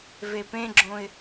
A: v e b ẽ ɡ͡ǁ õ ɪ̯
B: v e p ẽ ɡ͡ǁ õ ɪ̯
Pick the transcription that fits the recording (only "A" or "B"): B